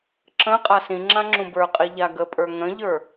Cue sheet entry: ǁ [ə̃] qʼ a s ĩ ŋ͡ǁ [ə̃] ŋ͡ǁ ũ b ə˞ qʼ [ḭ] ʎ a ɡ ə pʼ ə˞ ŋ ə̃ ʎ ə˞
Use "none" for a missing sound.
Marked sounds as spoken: ə̃, ã, i

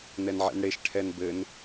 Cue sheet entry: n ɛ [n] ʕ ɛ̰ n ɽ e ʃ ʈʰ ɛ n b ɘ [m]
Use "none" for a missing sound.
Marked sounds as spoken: n, n

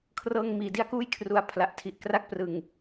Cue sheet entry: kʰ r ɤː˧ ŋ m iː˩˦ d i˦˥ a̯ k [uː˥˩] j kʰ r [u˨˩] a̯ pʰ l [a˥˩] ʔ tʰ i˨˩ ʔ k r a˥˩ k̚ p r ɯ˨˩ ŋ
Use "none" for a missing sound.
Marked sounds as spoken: uː˥˩, u˨˩, a˨˩

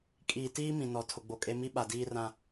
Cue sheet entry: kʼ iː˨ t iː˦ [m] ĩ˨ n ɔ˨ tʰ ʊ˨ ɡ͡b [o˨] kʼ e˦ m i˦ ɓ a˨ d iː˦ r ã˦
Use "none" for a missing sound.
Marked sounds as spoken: m, o˨

